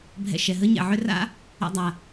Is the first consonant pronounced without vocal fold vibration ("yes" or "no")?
no